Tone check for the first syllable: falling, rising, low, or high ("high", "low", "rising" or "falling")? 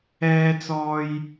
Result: high